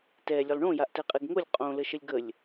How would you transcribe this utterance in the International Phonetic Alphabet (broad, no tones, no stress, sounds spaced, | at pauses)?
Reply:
t ɛ lʲ e lˠ ɳ õ j a ʔ t ɛ qʼ e ɡ ŋ o lʲ qʼ õ l ə ʃ ə lʲ ɡ ə lʲ